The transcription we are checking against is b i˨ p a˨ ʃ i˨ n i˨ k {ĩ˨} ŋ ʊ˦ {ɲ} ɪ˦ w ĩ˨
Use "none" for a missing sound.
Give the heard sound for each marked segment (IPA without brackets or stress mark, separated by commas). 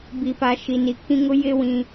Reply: ĩ˦, j